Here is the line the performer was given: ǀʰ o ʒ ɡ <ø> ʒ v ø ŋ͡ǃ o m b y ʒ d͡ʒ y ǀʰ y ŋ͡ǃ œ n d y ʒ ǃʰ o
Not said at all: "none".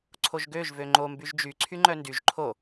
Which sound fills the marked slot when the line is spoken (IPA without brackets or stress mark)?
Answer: ø